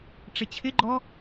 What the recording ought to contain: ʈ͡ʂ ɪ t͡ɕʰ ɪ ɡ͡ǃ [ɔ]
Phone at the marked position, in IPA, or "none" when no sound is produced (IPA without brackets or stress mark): ɔ